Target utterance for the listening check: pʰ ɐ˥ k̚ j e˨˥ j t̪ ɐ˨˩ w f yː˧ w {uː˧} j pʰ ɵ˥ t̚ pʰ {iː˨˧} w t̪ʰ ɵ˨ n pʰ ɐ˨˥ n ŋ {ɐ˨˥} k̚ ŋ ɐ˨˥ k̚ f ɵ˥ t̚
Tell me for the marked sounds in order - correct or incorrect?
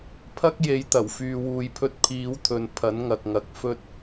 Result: correct, correct, incorrect

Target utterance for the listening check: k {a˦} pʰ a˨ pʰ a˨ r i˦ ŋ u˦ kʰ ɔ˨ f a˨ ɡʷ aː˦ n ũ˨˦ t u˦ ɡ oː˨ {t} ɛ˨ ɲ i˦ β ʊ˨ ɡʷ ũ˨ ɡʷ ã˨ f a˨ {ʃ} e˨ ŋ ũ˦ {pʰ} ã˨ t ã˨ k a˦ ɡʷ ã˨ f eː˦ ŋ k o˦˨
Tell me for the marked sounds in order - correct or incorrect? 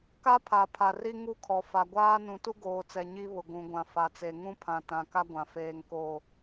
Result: correct, incorrect, incorrect, correct

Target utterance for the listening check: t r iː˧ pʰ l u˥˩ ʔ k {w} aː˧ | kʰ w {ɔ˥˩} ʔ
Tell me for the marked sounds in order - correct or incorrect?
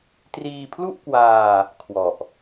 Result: correct, incorrect

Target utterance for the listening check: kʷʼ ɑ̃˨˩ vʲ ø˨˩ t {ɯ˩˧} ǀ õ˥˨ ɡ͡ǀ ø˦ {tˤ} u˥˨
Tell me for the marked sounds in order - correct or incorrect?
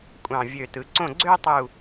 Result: correct, correct

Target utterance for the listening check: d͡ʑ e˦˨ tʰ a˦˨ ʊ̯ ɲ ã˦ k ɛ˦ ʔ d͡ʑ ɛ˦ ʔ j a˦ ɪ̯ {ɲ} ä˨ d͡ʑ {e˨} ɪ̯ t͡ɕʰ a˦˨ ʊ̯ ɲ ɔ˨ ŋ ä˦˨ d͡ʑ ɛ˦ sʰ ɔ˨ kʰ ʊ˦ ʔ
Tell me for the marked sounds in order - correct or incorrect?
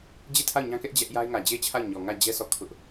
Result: incorrect, incorrect

